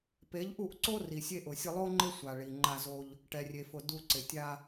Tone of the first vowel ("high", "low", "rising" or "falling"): rising